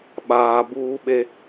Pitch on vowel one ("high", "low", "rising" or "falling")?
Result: low